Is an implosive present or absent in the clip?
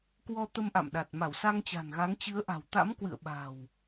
present